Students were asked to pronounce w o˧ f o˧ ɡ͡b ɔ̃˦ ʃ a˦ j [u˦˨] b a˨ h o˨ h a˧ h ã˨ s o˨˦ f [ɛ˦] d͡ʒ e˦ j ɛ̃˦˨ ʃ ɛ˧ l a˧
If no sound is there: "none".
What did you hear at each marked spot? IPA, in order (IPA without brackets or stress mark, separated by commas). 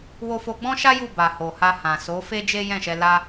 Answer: u˦˨, e˦